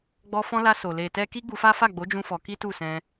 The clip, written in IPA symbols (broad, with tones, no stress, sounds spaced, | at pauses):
ɡ͡b ɔ˧ f ɔ̃˧ l a˧ s o˨ l e˨ t ɛ˧ k i˦ ɡ͡b u˧ f a˦ f a˦˨ ɡ͡b o˨˦ d͡ʒ ũ˦ f ɔ˧ k i˦ t u˦˨ s ɛ̃˧